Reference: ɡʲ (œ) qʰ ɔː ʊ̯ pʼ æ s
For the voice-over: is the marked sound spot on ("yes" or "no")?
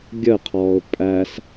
no